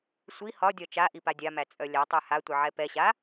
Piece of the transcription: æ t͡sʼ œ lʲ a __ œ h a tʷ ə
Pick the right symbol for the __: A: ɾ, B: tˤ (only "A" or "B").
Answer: B